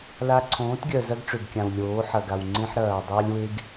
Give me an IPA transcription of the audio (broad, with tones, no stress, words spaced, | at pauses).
la˦ ǀʰõː˨˦tɡʲœ˨ zɐ˦ɡ ʈ͡ʂø˨bkʲã˨w lʲoː˨˦ħɐ˨ ɡa˨wŋ͡ǀẽ˦ħ ɾɐː˨ dˤa˦lʲwe˦ɡ